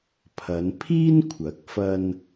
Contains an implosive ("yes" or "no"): no